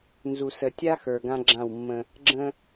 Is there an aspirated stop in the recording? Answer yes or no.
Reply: no